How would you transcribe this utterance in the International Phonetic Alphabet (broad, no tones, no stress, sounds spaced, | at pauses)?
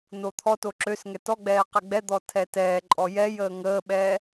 n o t̪ʰ ɔ t o ǁ ø s ŋ ɛ t ɔ ɡ͡b ɛː q ɛ ɡ͡b ɛ d̪ ɔ tʰ ɛ t ɛː ǃʼ ɔ j ɛ j əː ŋ əː ɓ ɛː